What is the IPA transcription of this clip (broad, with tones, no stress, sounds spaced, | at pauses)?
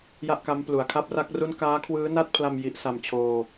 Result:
j a˥˩ ʔ k a˦˥ m p l u˨˩ a̯ kʰ a˥˩ p̚ r a˥˩ k̚ r u˥˩ n k aː˦˥ kʰ w ɯː˦˥ n a˥˩ t̚ pʰ l a˧ m j i˦˥ ʔ s a˧ m t͡ɕʰ oː˧